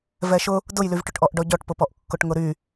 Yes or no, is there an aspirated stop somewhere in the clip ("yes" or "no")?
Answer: no